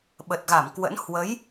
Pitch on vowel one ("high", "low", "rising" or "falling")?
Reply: low